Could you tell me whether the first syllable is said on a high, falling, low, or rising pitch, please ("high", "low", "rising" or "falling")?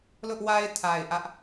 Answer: high